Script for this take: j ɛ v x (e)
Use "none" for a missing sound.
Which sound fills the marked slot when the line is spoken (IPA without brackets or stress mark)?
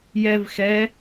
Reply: ɛ